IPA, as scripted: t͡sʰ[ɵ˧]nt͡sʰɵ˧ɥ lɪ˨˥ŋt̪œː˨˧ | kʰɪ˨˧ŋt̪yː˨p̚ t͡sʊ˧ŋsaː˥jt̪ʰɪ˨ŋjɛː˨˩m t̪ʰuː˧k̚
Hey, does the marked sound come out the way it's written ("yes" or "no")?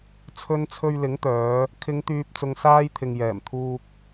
yes